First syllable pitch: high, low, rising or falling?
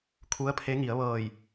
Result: rising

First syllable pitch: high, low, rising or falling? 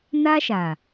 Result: high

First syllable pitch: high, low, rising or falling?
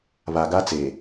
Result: low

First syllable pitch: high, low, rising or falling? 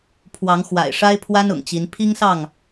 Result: rising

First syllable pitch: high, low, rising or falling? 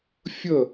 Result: falling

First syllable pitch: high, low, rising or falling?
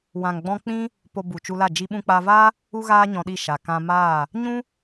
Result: low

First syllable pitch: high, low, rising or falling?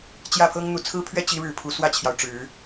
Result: falling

